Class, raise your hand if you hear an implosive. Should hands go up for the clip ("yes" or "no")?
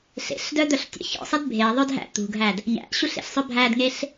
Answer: no